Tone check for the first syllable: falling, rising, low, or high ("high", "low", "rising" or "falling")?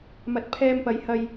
low